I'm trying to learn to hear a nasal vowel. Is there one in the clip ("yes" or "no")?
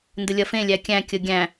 yes